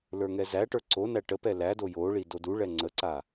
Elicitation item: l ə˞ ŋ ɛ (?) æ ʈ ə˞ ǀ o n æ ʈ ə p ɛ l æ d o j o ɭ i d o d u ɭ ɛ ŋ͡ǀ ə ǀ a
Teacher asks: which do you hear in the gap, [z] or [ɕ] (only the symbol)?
z